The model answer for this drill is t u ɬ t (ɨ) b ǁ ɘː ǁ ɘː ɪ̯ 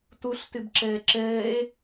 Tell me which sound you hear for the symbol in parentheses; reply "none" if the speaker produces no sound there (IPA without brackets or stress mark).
ɨ